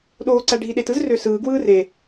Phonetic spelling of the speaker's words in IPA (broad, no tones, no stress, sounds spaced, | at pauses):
ɗ oː ǀ æ ɖʱ i ɗ e t ɯ z r ø s ɯː ɡ w ɯː r e